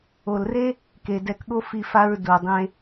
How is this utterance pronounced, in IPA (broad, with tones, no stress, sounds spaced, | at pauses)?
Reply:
o˨ l r e˦ | k e˨ d ɛ˧ k ɠ o˦ f i˧ f a˧ ɹ d u˨ dˤ ẽ˧